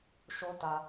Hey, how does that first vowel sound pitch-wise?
high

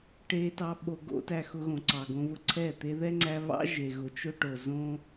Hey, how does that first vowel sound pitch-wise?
high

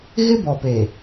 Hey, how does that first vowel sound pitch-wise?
high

